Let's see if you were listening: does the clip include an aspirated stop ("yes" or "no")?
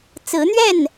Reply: no